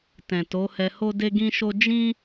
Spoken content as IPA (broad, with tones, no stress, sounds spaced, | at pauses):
t ɛ̃˨ t o˨˦ h ɛ˧ h o˦ d e˦ ɡ ĩ˦ ʃ o˦ d͡ʒ ĩ˦